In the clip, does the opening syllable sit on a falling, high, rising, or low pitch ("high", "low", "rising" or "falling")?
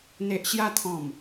low